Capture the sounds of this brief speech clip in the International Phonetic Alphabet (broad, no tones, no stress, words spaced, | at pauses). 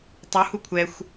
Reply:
tˤu hukʷʰɛxʷ